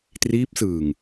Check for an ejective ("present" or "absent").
absent